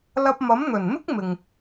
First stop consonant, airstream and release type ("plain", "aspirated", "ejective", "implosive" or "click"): plain